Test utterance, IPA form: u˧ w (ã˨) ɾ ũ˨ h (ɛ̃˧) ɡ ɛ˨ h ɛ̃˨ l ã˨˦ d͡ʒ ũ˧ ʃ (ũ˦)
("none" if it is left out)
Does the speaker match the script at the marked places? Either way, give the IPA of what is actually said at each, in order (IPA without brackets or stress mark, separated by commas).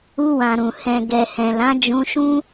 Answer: ã˨, ɛ̃˨, ũ˦